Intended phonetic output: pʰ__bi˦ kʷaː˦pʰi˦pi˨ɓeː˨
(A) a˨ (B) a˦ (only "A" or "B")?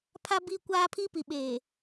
B